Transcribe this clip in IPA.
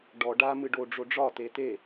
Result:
ɖ ɔ ɖ a m ɨ ɖ o ɖ͡ʐ o ɖ͡ʐ ɒ t e t e

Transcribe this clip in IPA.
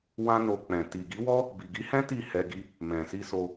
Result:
w ã˦ n o˧ k͡p ɛ̃˨ t i˨ ɡ i˨˦ w ɔ˦ | b i˨ ɡ i˨˦ h ɛ̃˦ t i˦˨ h ɛ˧ ɡ i˦ | m ɛ̃˨ s i˧ s o˧

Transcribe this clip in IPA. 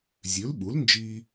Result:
zʲ ʉ˩˥ l ɓ u˩˥ l n d͡ʒ i˧

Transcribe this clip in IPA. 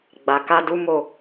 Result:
ɡ͡b a˨ k a˧ d u˦ m o˦˨

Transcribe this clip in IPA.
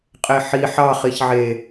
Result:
qʼ e ħ i ħ ɑ χ i ç ʕ e

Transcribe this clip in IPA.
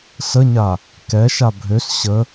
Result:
s ə ɲ a | k ɛ ʃ a bʱ ø s ɕ ə

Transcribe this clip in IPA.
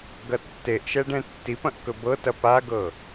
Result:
ɡ ɐ tː e ʔ ʃ ɛ ɖ ɛ̃ tː i p ɐ̃ ʔ k ɵ b ɤ t ɐ p a ɡ ɤ

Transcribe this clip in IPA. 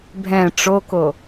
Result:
bʱ ɛ̃ ʈ͡ʂ o k o

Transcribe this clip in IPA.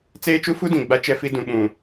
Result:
t͡s eː˦ t͡ʃ u˦ f u˦ d ĩ˨ ɡ͡b a˦ t͡ʃ ɛ˦ f i˦ d ũ˨ ɓ ũ˨

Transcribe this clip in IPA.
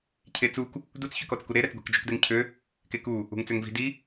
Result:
cʰ e t͡s u k | d u t͡s ç ø k ɔ t͡s k u ɾ e ɾ ɛ t͡s ɡʷ i̤ k d͡ʒ ø k d ɛ ŋ cʰ ø | k e k u | ṳ ŋ t͡s ø ŋ v i̤ d i

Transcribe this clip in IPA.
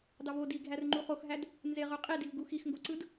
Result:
d ɑ v o d i ɡʱ æ r ŋ͡ǃ u χ o x ɦ æ d | n z e ʁ ø qʼ i d i v ɡ u x i x ŋ ɡ o ǀ ɯ d

